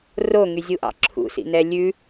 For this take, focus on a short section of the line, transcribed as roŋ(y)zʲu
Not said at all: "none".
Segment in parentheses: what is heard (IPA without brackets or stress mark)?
y